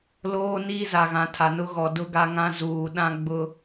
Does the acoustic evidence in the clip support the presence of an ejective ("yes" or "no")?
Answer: no